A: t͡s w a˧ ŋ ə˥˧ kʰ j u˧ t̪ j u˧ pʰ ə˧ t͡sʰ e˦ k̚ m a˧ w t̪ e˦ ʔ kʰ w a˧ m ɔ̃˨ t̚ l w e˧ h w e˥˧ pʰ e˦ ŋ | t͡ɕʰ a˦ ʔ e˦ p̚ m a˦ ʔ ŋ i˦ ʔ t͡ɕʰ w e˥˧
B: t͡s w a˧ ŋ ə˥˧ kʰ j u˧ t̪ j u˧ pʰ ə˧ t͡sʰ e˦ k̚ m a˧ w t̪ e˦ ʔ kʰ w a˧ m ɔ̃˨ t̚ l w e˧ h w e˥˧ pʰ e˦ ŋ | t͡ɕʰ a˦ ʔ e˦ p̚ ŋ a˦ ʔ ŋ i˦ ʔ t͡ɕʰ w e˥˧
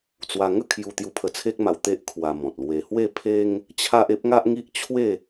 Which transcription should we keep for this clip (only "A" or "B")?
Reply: B